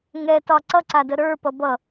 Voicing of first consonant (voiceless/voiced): voiced